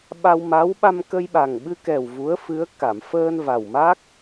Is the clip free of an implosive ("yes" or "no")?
no